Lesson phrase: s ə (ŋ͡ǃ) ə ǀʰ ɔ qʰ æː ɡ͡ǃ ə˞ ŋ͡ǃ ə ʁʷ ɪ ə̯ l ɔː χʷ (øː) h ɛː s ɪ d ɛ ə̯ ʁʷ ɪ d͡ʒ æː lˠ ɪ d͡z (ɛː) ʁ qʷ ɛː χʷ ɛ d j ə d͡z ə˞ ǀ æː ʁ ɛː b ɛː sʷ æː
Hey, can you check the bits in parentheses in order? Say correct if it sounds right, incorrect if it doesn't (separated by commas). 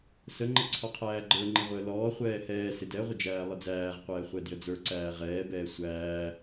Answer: correct, incorrect, incorrect